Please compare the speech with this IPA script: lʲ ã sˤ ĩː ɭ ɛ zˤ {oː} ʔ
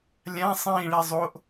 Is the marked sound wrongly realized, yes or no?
yes